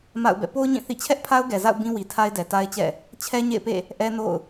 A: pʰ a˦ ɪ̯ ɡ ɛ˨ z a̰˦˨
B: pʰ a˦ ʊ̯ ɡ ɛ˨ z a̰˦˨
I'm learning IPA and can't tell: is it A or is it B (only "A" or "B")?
B